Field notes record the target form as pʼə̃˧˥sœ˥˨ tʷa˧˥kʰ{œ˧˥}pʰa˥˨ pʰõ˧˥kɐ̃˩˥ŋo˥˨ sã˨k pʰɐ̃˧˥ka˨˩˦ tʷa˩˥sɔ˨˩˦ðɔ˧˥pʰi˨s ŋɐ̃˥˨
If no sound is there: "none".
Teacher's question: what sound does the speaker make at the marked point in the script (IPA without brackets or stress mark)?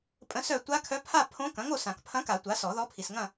œ˧˥